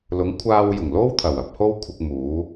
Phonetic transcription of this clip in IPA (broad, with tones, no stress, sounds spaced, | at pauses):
l ʊ˨˥ ŋ kʷʰ aː˧ w j ʊ˨˩ ŋ l o˥ w t̪ʰ ɐ˨˩ w ɐ˧ p̚ h o˥ w kʷʰ ɪ˧ k̚ m uː˨˥